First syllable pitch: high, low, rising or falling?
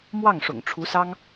falling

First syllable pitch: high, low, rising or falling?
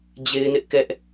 high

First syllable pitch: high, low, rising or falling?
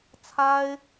high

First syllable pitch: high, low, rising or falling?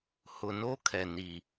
low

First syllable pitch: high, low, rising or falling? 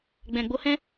low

